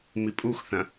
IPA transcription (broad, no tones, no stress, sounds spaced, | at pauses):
m i pʼ u x θ ɐ̃